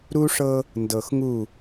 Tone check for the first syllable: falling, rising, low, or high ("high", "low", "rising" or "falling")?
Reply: high